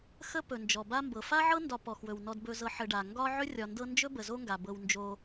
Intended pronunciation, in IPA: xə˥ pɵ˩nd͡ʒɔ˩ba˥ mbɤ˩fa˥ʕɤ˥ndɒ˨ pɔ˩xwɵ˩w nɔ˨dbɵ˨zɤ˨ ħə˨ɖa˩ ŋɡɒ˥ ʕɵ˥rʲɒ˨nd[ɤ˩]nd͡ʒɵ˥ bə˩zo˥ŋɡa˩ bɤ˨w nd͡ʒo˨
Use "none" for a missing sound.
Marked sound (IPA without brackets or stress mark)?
ɤ˦